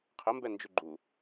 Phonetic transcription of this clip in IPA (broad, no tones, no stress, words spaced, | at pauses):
qʰəmbɛnd͡ʒʉ ɡ͡ǃu